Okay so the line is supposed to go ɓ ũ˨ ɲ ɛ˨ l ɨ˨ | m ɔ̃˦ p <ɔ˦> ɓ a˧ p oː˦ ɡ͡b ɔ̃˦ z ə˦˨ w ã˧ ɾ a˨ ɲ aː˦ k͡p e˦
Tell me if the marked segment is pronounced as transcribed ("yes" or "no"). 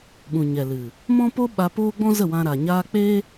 no